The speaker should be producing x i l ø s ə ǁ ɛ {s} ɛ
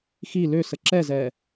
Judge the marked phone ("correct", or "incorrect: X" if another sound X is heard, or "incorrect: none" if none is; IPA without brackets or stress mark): incorrect: z